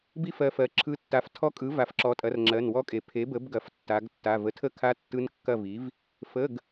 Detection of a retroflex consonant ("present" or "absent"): absent